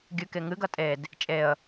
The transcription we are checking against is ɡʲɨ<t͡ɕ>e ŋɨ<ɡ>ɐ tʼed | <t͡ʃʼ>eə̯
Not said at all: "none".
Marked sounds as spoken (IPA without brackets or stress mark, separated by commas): k, ɡ, t͡ʃʼ